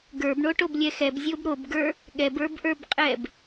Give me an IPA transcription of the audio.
ɡə˞bɳoʈoblʲɛ xɛbzʲob ɾobɡə˞ | ɠɛbə˞bʔə˞bqʼɛb

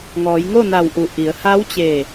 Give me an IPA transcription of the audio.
ŋɔː˩˧jŋo˥˨na˧˩wʔu˩˧ ʔi˩˧ə̯ha˧˥wt͡ɕe˧˩

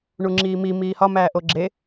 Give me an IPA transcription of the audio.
ɳuŋ͡ǁiːmi miːhɒ mæːʔoɡ͡ǁe

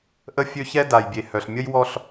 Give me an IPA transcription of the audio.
ʔə˦fʲø˦çɛ˦ da˨jbʲe˨hœ˨ɬ mʲə˦jwɔ˦ɬ

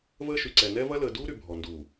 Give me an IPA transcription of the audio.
vəː˦ʃy˨ǀɛ˨ nɛ˦vɐ˦ ləː˨duː˦ɾy˨ bʱɔ˨nduː˨

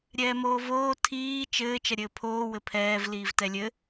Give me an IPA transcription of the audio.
ɾʲɛːmoːvoː tʰiː t͡ʃɘː t͡ʃɐɾʲɘːpʰoː wɘpʰɛːv liːvtɛlʲɘ

